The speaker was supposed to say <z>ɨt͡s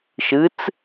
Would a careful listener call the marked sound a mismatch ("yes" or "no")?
yes